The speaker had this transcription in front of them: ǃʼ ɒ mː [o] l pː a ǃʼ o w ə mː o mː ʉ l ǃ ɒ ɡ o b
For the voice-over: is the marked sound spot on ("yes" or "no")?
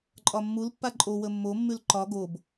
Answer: no